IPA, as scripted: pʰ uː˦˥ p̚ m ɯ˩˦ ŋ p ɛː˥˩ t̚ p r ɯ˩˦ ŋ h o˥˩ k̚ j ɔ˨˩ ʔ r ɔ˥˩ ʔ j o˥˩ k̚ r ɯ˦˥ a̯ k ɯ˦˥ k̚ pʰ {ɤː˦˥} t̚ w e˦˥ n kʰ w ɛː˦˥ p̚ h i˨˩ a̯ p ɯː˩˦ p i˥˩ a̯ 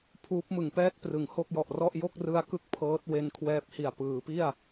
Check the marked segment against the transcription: correct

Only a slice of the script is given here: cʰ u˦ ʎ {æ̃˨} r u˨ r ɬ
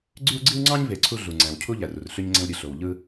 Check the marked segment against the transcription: incorrect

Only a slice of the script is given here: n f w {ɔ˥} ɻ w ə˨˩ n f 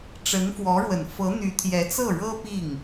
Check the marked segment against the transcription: incorrect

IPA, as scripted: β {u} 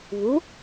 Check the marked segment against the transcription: correct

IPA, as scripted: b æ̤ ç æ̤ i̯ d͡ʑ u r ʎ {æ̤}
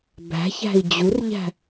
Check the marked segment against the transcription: correct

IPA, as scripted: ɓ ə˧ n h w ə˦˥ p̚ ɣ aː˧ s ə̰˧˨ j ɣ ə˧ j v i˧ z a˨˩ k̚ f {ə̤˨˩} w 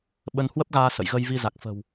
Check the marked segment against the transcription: correct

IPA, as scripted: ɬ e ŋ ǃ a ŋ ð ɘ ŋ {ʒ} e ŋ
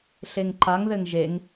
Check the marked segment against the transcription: correct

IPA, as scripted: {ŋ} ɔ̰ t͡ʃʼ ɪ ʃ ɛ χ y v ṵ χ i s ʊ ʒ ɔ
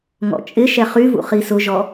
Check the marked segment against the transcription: correct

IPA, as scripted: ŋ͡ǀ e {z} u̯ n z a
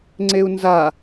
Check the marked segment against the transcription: incorrect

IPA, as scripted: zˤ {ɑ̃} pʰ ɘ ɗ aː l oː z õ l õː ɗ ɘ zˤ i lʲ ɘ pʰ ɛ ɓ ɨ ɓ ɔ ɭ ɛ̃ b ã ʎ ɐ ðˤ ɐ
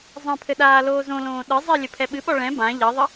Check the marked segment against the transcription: incorrect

